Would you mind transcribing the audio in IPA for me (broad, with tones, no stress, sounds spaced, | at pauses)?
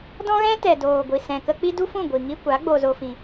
d ɔ̃˦ ɣ ɛ̃˦ t ɛ˨ d oː˨ ɡʷ i˨ s ɛ̃˨ k ə˧ k͡p i˦ d u˦ f ũ˦˨ ɡʷ i˨ ŋ i˧ kʷ a˨˦ ɡ͡b o˧ z o˧ f ĩ˨